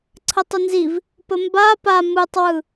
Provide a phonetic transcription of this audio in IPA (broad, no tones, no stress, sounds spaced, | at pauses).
ǀʰ ə tˤ ə n z i v | p ə m b a p a m ɯ tˤ w ɯ